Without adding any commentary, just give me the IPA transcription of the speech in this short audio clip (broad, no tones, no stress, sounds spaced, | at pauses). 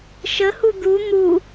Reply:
ʃ ə h u d̪ u n̪ u